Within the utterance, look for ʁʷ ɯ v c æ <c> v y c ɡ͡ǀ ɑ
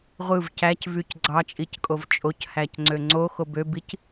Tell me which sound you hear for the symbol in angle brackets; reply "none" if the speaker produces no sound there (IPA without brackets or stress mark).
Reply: c